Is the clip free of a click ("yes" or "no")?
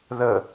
yes